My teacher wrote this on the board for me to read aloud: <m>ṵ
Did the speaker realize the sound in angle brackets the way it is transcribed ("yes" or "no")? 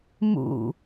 yes